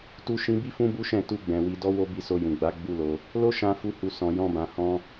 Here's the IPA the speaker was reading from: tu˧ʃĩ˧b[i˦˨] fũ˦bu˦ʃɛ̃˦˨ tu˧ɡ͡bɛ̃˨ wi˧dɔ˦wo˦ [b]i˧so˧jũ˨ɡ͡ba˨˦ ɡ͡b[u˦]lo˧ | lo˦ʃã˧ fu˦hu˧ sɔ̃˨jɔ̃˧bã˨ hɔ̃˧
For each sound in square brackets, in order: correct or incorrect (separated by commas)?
incorrect, correct, correct